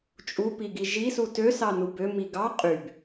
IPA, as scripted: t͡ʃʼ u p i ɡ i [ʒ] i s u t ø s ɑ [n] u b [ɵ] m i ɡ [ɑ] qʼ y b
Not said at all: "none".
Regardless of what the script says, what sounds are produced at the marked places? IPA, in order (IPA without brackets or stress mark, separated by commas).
ʒ, n, ø, ɑ